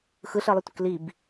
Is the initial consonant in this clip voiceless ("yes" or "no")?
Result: yes